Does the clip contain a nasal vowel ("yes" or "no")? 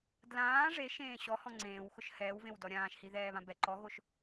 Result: yes